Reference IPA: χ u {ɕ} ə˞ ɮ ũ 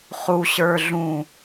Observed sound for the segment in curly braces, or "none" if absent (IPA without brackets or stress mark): ɕ